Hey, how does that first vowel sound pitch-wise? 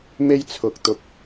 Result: high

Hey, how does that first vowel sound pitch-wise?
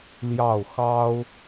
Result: falling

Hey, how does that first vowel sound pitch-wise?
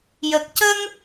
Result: low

